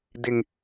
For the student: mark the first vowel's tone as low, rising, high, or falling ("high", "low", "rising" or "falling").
low